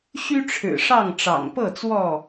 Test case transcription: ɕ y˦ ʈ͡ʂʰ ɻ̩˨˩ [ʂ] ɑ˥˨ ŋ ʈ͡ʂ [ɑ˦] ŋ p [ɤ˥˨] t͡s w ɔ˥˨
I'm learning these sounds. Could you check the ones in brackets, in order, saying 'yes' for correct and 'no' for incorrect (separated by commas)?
yes, no, yes